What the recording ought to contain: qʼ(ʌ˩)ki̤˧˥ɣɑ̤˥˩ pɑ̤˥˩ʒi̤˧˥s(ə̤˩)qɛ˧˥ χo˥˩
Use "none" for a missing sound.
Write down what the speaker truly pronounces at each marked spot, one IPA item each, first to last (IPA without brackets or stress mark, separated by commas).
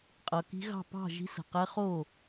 ʌ˩, ə̤˩